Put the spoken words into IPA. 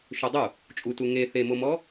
ʃ ø dˤ u | t͡ʃʼ u t u ŋ e θ e m o m ɔ

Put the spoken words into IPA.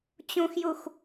t͡ɕ ũ x j u x

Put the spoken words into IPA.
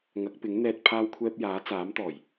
ŋ ɐ˨˥ k̚ p ɪ˨˥ ŋ n̪ ɛː˧ t̚ pʰ aː˧ w kʷʰ ɛː˧ p̚ j aː˨˥ t͡s aː˨˥ m t̪ ɔː˨˩ j

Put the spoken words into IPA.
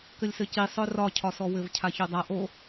k ɘ lʲ s ɘ c i sˤ œ r ɒ cʰ ɒ s ɔ w ɘ v cʰ a ç o dˤ a ʔ o

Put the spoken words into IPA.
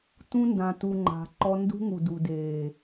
t ũ˧ n d ã˨ t u˨ ŋ͡ǃ a̤˨ ǃ ɔ˧ n d ṳ˦ ŋ u˨ d u˨ d eː˨

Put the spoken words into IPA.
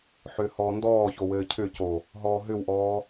ħ ʏː h ɔː n d ɔː ç o w ɘː cʰ ʏ c o | ɦ ɔː ɦ ʏ w ʔ ɔː

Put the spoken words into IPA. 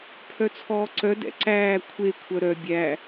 pʰ œ t͡sʰ ɔː ǀ œ d ɛ̰ ǀ æː kʷʰ e kʷʰ œ ɾ œ bʲ æ

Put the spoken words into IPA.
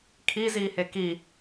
kʰ i z iː h e k i

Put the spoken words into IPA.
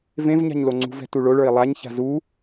v ẽ v ɲ a̤ ɲ l o ŋ͡ǀ ṳ v ɛ̤ t u ɭ o ɭ ə˞ i̯ lˠ a ɲ ç a̤ z u

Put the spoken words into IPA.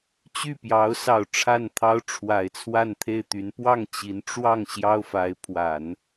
t͡ɕ y˥˩ p j ɑ˧˥ ʊ̯ s ɑ˨˩ ʊ̯ ʈ͡ʂʰ a˥˩ n t̪ʰ ɑ˥ ʊ̯ ʈ͡ʂʰ w a˨˩ ɪ̯ t͡sʰ w a˥˧ n t̪ʰ e˥˩ ɪ̯ t̪ y˧˥ n p w ɑ˥˩ ŋ t͡ɕ i˧˥ n ʈ͡ʂ w ɑ˥˩ ŋ ɕ j ɑ˥ ʊ̯ f a˧˥ ɪ̯ pʰ w a˨˩˦ n

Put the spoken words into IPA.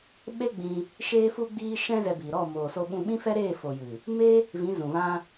ɓ e˦ ɡ͡b ĩ˧ | ʃ eː˧ f u˧ ɡ͡b iː˧ ʃ ɛ̃˦ z ɛ˧ b iː˨ ɾ ɔ˦˨ m oː˨ s o˧ ɓ ũ˧ ɓ ĩ˦ f ɛ˦ ɾ eː˦˨ f o˨ j ɨ˨ | m e˦ | v ĩ˨˦ z ũ˨ v ã˦

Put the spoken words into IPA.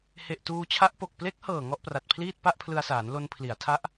h e˨˩ ʔ t uː˧ t͡ɕʰ a˦˥ ʔ p o˨˩ k̚ p l e˦˥ k̚ h ɤː˨˩ ŋ ɔ˥˩ ʔ p r a˨˩ t̚ pʰ l iː˥˩ t̚ p a˥˩ ʔ pʰ l ɯ˧ a̯ s aː˩˦ n l o˧ n pʰ l i˩˦ a̯ tʰ a˦˥ ʔ

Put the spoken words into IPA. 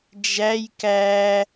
d͡ʒ æ j k æ

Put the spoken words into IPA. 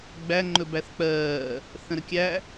ɡ͡b æ ŋ͡ǃ ɵ b æ θ k͡p ɜː | θ ə̃ ɾ ə kʲ æ

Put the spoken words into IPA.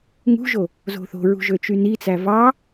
ŋ ṳ ʒ o | z o̤ θ o̤ ɹ ṳ ʒ ø t͡ʃ y n i t͡s æ v ɑ

